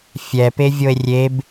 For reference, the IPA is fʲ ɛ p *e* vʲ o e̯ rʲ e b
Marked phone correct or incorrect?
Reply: correct